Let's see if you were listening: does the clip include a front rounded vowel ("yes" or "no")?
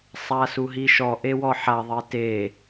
no